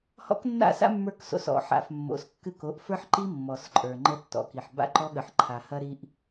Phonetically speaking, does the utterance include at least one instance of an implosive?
yes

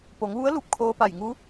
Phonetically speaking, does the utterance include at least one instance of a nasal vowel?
no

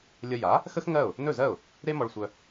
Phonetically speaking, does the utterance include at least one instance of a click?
no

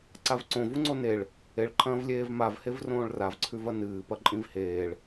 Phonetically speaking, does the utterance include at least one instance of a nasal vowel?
yes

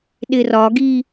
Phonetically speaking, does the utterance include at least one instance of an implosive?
yes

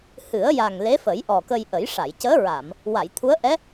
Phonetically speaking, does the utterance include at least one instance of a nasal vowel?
no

